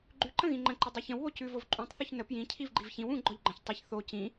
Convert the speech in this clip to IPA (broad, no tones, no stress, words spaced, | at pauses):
ɡ͡ǃʉǃə̃ ɣĩŋ͡ǃə̃ǃə dˤʉçə̃wβo cʉvov ǃʼũtˤθuç nə pjĩ cʰivɡ͡ǃivçĩw ũ ɡ͡ǃɔʎɡ͡ǃə̃ç tˤiç θo cĩ